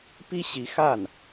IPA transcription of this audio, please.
p i˥ ɕ i˧˥ x a˥˩ n

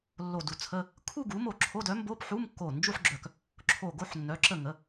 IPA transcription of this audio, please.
lː o˧˩ d u˧˩ t͡sʰ ə˧˥˧ | kʰ u˥˧ ɡ u˩˥ m o˧˩ ǁʰ o˧˥˧ d œ˩˥ m b o˧˥˧ p ħ u˧˥˧ m kː o˧˩ n d͡ʒ u˥˧ ħ ɡ͡ǁ œ˧˩ k | ǁʰ o˧˩ ɡ o˥˧ ħ nː œ˩˥ ǁ ə˧˩ ŋ ə˩˥

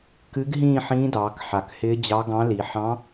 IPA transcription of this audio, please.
k ɨ˧˥ ɡ ɦ ĩː˥˨ ħ ĩː˧˥ d ɑː˩˧ k ħ a˩ k h ɪː˧˥ d͡ʑ ɑ˧˥ ɡ ɑ̃˧˥ l i˩˧ ħ ɑ̃˧˥

